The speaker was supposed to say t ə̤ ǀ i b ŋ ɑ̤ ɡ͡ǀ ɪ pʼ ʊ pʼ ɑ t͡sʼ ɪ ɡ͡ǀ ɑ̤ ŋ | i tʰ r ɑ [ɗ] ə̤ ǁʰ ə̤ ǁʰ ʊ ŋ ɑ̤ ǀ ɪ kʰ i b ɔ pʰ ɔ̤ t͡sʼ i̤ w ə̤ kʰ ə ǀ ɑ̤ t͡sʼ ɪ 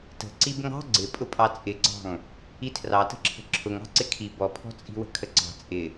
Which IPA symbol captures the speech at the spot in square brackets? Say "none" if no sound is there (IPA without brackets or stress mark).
t